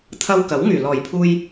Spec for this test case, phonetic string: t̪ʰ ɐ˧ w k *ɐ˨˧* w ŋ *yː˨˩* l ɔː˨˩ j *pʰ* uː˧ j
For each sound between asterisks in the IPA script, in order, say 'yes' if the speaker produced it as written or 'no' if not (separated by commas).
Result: no, yes, yes